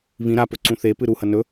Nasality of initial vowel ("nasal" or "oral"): nasal